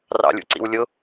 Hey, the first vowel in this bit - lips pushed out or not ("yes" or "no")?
no